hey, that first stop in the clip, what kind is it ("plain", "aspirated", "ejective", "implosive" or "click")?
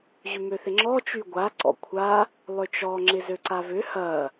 click